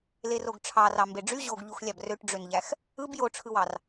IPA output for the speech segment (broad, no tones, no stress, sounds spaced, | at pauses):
l e r o ɡ ʈ͡ʂʰ ɑ r ɑ m b e ɖ͡ʐ y ʑ o ɡ ʎ u x lʲ ɑ b r ø ʈ ɖ͡ʐ ø n ʎ æ x | ɯ b j o ʈ͡ʂʰ ɯ w ɑ r